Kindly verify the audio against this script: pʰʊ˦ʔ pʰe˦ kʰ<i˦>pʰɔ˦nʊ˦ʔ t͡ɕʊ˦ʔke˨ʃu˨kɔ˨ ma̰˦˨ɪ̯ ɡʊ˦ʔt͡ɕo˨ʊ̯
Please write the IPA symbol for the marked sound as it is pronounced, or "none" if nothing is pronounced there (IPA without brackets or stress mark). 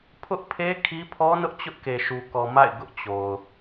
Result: i˦